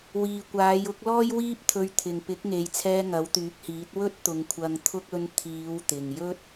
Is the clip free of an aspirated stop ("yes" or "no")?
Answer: no